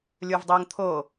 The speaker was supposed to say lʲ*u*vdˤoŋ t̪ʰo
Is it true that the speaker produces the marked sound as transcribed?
yes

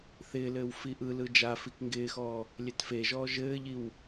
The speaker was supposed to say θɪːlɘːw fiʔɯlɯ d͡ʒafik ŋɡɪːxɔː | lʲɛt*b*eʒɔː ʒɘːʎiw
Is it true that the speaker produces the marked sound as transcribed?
no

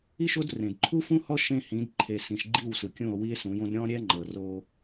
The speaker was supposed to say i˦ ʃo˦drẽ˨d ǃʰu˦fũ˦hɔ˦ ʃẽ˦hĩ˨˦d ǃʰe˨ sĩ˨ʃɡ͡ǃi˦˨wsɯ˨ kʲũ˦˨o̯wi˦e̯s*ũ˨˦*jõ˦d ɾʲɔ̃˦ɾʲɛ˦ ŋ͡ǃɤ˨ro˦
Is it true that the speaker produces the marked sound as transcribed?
yes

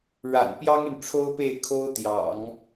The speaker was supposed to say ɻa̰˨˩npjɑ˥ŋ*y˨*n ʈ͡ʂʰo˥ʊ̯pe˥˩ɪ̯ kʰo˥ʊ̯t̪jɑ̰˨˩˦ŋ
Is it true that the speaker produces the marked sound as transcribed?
yes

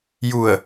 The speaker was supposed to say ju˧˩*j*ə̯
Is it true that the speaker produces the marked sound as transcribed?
no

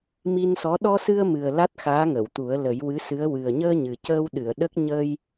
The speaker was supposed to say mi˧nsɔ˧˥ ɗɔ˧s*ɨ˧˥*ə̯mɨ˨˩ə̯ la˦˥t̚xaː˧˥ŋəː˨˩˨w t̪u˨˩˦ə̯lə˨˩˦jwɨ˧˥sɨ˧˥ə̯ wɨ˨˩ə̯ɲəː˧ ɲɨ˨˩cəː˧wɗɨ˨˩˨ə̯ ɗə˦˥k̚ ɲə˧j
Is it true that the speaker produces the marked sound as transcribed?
no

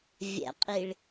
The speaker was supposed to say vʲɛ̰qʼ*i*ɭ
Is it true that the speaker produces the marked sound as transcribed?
yes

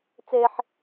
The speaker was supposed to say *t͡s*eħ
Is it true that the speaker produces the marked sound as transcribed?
yes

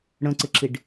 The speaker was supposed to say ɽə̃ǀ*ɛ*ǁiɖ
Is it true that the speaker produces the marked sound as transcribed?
no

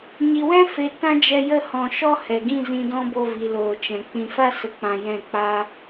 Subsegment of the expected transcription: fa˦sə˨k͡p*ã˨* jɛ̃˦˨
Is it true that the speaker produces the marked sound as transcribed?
yes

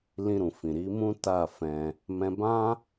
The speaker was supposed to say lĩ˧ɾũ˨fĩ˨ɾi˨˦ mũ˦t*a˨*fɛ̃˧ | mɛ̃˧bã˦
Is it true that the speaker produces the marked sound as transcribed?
no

